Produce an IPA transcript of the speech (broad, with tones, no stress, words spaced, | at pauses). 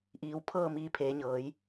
ʔiː˩˧wpʰɤː˥˨ miː˧pʰeː˩˧ɲɤː˩˧j